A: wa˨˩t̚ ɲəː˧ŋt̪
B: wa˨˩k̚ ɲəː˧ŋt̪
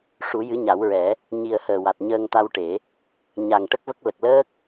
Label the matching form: A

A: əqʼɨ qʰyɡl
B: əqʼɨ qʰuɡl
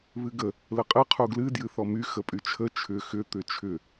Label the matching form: B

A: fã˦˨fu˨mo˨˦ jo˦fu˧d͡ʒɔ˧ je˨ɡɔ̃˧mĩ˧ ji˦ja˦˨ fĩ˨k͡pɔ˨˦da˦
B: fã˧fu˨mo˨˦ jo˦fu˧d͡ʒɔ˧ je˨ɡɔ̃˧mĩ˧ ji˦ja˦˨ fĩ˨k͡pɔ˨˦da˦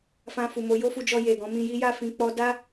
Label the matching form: B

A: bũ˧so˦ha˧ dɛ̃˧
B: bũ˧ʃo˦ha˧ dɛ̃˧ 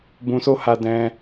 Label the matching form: A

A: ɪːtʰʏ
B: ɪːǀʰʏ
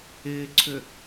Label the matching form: B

